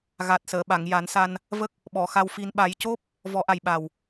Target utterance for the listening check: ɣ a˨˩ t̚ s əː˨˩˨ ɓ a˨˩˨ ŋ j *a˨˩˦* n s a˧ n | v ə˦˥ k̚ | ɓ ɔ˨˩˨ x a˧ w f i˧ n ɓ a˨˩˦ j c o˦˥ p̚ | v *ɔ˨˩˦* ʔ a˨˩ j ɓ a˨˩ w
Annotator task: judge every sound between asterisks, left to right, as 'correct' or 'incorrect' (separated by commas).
correct, correct